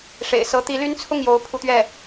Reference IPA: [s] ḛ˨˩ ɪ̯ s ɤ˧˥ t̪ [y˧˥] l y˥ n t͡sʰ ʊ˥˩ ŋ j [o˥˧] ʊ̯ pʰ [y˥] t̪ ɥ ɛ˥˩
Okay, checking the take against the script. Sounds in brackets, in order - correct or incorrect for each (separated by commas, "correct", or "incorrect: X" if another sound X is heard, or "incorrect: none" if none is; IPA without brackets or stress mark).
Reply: incorrect: ʂ, incorrect: i˧˥, incorrect: o˧˥, incorrect: u˥